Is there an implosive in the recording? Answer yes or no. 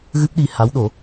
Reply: yes